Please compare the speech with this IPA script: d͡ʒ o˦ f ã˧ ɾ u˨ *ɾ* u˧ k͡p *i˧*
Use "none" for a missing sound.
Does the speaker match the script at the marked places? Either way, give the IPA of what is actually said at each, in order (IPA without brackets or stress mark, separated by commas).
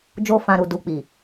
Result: d, i˨